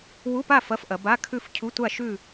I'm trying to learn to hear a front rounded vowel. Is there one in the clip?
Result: no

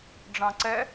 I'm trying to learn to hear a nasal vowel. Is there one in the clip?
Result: yes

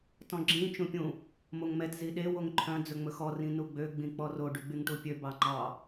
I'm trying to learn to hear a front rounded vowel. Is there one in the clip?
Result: yes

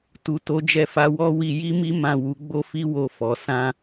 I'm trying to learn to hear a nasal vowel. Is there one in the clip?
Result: yes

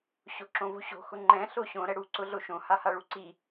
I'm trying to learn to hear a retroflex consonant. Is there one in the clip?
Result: yes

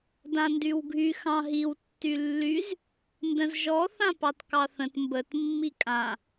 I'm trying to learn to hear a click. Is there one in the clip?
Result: no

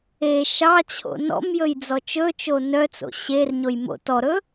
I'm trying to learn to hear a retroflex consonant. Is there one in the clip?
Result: no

